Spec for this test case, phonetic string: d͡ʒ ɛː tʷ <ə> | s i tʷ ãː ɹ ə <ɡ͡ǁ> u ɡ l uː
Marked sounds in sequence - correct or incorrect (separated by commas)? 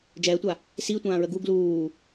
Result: incorrect, incorrect